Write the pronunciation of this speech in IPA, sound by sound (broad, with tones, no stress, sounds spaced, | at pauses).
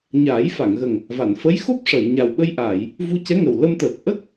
ɲ aː˨˩˦ j f a˨˩˨ ŋ ɣ ə˨˩ ŋ | v a˨˩˨ n f ə˧˥ j x o˦˥ p̚ ʂ ə˨˩˨ j ɲ a˨˩ w ɓ ə˧ j ʔ aː˨˩˨ j | v u˧ c ɛ˧˥ ŋ ə˨˩ w l ə˧ m t̪ əː˨˩ k̚ ʔ ə˦˥ k̚